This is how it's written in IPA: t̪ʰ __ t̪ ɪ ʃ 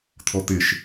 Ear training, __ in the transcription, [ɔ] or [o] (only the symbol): ɔ